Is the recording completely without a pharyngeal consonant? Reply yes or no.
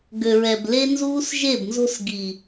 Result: yes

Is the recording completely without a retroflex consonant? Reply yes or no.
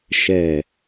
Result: yes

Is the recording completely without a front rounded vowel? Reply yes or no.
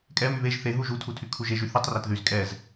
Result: no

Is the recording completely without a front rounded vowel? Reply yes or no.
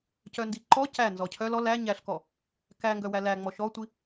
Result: no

